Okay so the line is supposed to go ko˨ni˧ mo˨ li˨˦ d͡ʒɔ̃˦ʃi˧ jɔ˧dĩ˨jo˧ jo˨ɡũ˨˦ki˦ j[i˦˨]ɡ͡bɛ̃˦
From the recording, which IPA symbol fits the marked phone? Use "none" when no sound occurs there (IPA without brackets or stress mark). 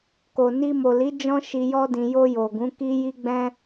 i˦